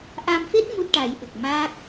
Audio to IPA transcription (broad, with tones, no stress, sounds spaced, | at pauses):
ʔ a˧ m f e˦˥ t̚ m u˦˥ t̚ ʈ a˨˩˦ j ɓ ə˨˩ k̚ m aː˦˥ k̚